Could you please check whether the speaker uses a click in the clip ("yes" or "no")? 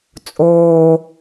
no